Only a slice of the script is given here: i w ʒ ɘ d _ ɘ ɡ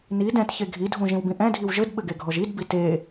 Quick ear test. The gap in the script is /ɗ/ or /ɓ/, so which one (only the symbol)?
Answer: ɓ